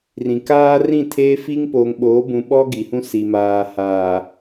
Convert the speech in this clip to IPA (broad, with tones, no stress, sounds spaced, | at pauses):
r ĩ˨ k aː˦ r ĩ˦˨ tʰ eː˦ f i˦ ŋ p oː˨ ŋ ɓ oː˨˦ b ũ˨ ɓ ɔ˦ ɡ i˨ h ũ˦ s i˨ m aː˨ h aː˨